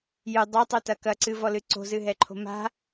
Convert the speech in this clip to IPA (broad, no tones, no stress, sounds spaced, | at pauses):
j ɨ dˤ ɛ tˤ u t ɐ k ɐ ǀ ɨ v ɔ l ɨ ǀ o̤ z ɨ ɦ ɛ ǃʰ o̤ m a̤